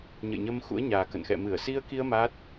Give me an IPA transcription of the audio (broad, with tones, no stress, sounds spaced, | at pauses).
ɲ ə̰˧˨ j ɲ ə˧ m x ṵ˧˥ ə̯ ɲ aː˨˩ k ə̰˧˨ n x ɛ̰˧˨ m ɨ˧˩ ə̯ s i˧ ə̯ k i˧ ə̯ m a˦˥ t̚